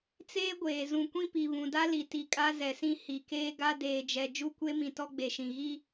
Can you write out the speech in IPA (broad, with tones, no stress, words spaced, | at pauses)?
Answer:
t͡seː˦ɡʷeː˨ zũ˨kʷĩ˦pi˨ βũ˨da˦li˨ti˨ kʼa˦zɛ˨sĩ˦ hi˨keː˦ɡa˦ deː˨d͡ʒɛ˨ d͡ʒu˦˨kʷe˦mĩ˨ tɔ˦ɡ͡be˨ʃĩ˨ ɣi˦